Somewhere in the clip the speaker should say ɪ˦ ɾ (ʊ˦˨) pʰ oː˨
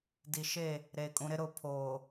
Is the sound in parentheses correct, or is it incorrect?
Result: correct